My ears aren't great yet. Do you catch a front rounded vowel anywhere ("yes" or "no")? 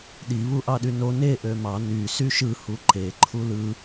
yes